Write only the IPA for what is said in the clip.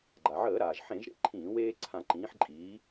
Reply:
ɡ͡ǃ a˩ ʕ əː˧˩˧ ɾ aː˩ ʒ ħ ẽ˧˩˧ ʒ ɾ ḛ˦ ǃʰ ĩː˧˩˧ w eː˦ ǀʰ ã˧˩˧ ǃ ĩː˩˧ ħ ǃʼ iː˩˧

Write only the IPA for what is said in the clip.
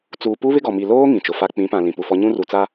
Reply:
t͡s uː˨ p u˦ β ɪ˦ ɡ ɔ˨ m i˨ l oː˦ ŋ ĩ˨ t͡ʃ ʊ˨ f a˦ k͡p ĩ˨˦ p ã˨ l ĩ˨ p u˨ f ɔ˦ ɲ ũ˦ r u˨ t͡s a˦

